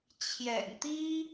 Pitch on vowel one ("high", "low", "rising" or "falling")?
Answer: low